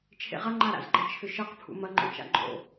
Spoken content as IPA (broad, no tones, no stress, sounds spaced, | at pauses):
t͡ʃʰ ḛ ʁ ɐ ŋ͡ǃ a ɾ a̰ z ɡ͡ǃ ɐ t͡ʃʰ ʏ ʃ ɤ q pʰ ṵ m ɐ ŋ͡ǃ o̰ t͡ʃ a̰ ɡ͡ǃ o̰